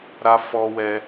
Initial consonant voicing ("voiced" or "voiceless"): voiced